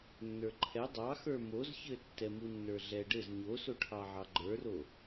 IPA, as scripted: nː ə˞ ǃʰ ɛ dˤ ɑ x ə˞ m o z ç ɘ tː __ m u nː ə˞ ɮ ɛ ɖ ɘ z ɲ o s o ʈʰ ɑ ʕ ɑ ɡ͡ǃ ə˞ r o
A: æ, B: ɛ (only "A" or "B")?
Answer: B